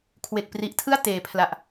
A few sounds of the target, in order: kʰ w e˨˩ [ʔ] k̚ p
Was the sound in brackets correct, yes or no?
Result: no